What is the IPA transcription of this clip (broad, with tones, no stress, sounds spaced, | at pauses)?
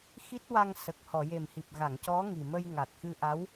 x i˦˥ t̚ w a˧ ŋ s ə˨˩ k̚ h ɔ˨˩˨ j e˨˩ m h i˨˩ p̚ ɣ a˨˩˨ ŋ c ɔ˧˥ ŋ i˨˩ m ə˧ j ŋ a˨˩ t̚ x ɨ˧ ʔ a˧˥ w